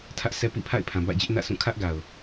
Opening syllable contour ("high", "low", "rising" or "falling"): high